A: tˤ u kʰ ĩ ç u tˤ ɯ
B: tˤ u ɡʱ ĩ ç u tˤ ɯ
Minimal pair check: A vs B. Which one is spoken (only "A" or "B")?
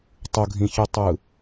B